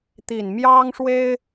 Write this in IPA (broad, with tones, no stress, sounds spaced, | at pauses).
t̪ i˨˩ n m j ɑ˥ ŋ ʂ w e˥ ɪ̯